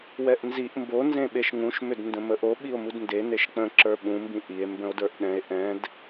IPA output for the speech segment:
w ɛ ʔ n z i ʔ m b o n z ẽ ɓ e ʃ ŋ ũ ʃ m ʏ d n d ə̃ m ə ʔ o ɓ i o̯ m u d n d e n e ʃ k͡p ə̃ ǁ ə˞ ɓ ũ m b ĩ ʔ i e̯ m b ə̃ o̯ d ə˞ ʔ ɗ ɛ̃ e̯ ʔ ɛ̃ d

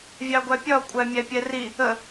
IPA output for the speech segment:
vʲ ɑ ɡʷ æ pʲ ɒ kʷʼ æ mʲ æ pʲ ɛ r i | ə

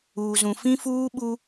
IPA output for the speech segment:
uː˨ z ũ˨ f ĩ˦ f uː˦ ɓ u˦

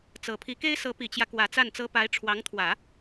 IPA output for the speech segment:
t͡s ɤ˨˩ pʰ i˧˥ k e˥ ɪ̯ s ɤ˧˥ p i˨˩ t͡ɕ j ä˦ k w ä˧˥ t͡s a˥˩ n t͡s ɤ˥ p a˧˥ ɪ̯ ʈ͡ʂʰ w ɑ˧˥ ŋ t̪ʰ w ä˨˩˦

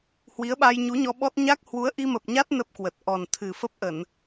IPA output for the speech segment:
h w i˨˦ ə̯ ɓ a˧ j ɲ u˨˦ ɲ ɔ˧ ɓ ɔ˦˥ t̚ ɲ a˦˥ k̚ h w u˨˦ ə̯ ʔ i˧ m ə˨˩ p̚ ɲ a˦˥ t̚ n ə˦˥ p̚ k w ə˨˩ t̚ ʔ ɔ˨˩ n t̪ʰ ɨ˨˩ f ə˦˥ p̚ ʔ ə˧˩˨ n

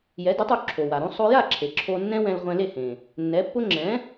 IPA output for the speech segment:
j ɛ˩˥ d ʊ˩˥ tˤ o˧ ǁʰ o˩ w a˩ ɾ õ˥ sˤ o˧ j a˥˩ ǁʰ e˩ ǁʰ o˧ nː ɛ̃˥ w ɛ̃˧ l ʁʷ ɛ̃˧ l e˥˩ h ẽ˩ | nː ɛ˩˥ pː ʊ˥ ŋ͡ǁ ɛ̃˩˥

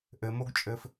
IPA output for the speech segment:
ʔ ɘ m o ɡ t͡ʃʼ ɘː f

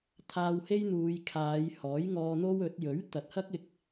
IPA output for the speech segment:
t̪ʰ aː˧ w h e˥ j n̪ uː˨˧ j kʰ aː˨˧ j h ɔː˨˥ j ŋ ɔː˧ n̪ o˥ w ɵ˨˥ t̚ j ɵ˨˥ ɥ t̪ ɐ˨ t̚ h ɐ˥ k̚ ɪ˧ k̚

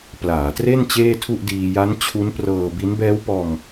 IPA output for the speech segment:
p l aː˩˦ t r e˥˩ n t͡ɕ eː˥˩ tʰ u˥˩ ʔ d iː˧ j a˦˥ n t͡ɕʰ u˦˥ n p r ɤː˧ b i˦˥ n b ɛː˦˥ w p ɔː˧ ŋ

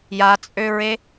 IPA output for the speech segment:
j a t͡sʼ ø ɹ e

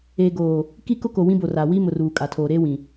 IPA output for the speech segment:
eː˨ ɡ oː˨ | k i˦ k ʊ˦ k o˨ w ĩ˦ b o˨ r a˨ w i˦ m ʊ˨ r uː˨ kʼ a˨ tʰ oː˨ ɾ eː˦ w ĩ˨

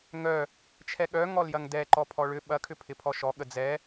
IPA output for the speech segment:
ŋ œ | t͡ʃʰ ɛ ɠ œ ŋ ɔ l j ɐ ŋ d ɛ ǃ ɔ pʰ ɔ ɭ ʏ ɓ ɐ kʰ ʏ pʰ ɪ pʰ ɔ ʃ ɔ ɠ ə d͡z ɛ

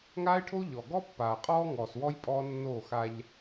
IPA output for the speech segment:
ŋ aː˦ ɪ̯ ʈʰ o˦ ʎ ɔ˨ ɡ ɔ˦ pː aː˨ qʼ ɔː˦ ŋ ɔː˨ s w ɔ˦ j pʼ ɔː˦ nː oː˦˨ x a˦ ʎ

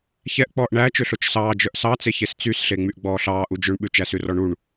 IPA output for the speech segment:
ç ɛ ʔ k͡p ɔː ʔ ɳ æ t͡ʃ ø ɬ o t͡ʃ s ɑː d͡ʒ œ ʔ s ɑ t͡s e ç e s t͡s y s ɬ e ŋ͡m y ʔ ɡ͡b ɔː ɬ ɑː ʔ u d͡ʒ ø ɳ ɓ ʉ t͡ʃ æ s ʉ r ɔ ɳ u ɳ

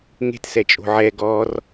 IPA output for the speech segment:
ŋ e̤ t s ɛ t͡ʃʼ o̤ ʕ ɛ ɡ ɔ r

